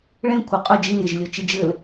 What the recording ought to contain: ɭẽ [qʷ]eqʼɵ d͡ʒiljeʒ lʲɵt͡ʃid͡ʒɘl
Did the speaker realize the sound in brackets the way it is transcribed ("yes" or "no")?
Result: no